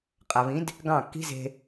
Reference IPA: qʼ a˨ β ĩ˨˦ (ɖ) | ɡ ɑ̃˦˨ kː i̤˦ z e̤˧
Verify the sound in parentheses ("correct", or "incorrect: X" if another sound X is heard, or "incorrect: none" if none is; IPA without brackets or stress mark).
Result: incorrect: d